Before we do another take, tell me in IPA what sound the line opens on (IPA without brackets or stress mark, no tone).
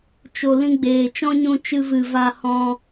t͡ʃ